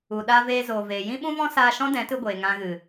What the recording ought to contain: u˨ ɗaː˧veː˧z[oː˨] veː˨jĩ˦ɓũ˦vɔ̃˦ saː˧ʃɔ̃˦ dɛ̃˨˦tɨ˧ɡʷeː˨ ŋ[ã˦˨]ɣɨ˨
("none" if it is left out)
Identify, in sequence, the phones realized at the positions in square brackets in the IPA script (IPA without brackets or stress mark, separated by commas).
oː˨, ã˧